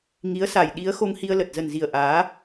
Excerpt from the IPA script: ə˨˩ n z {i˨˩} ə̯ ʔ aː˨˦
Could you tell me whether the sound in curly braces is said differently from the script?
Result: no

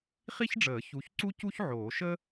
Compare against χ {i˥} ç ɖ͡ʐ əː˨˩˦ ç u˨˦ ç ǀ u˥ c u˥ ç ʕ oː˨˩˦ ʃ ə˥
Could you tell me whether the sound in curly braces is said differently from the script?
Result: no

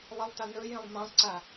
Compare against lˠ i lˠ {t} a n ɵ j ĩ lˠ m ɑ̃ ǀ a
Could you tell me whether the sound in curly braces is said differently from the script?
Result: no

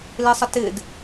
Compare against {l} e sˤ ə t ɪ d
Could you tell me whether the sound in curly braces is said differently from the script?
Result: no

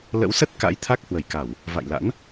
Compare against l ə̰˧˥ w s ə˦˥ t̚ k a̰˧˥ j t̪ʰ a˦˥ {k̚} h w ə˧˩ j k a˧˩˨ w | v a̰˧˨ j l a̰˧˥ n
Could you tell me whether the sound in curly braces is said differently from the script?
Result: no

